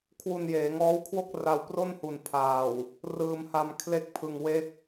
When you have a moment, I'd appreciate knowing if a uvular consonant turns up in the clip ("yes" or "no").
no